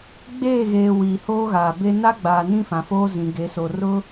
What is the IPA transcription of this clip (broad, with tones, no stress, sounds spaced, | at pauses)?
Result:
ɡ͡b eː˦˨ ɣ eː˨ w iː˨ h oː˦ ɣ aː˨ b e˦ n a˦ ɡ͡b aː˨ n ĩ˦ f ã˨ f oː˦ z ĩ˨ ɡ e˨˦ s o˨ r ʊ˦